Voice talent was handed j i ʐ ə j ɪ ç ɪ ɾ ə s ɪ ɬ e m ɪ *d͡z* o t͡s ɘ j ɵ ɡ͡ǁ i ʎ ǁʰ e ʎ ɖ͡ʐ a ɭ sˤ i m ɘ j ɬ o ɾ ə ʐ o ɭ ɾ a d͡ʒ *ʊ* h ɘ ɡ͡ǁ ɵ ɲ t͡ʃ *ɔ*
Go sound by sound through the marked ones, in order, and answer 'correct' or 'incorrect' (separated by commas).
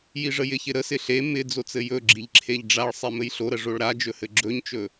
correct, incorrect, incorrect